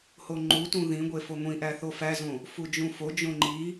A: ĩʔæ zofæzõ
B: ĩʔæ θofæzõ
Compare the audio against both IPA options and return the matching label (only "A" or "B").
B